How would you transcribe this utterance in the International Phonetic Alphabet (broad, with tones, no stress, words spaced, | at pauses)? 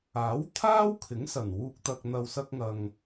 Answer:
aː˨˥wt̪ʰaː˥wkʰɪ˨˥ŋ sɐ˨˩nwuː˧k̚t̪ɐ˧k̚n̪ɐ˧w sɐ˥k̚ŋɐ˧ŋ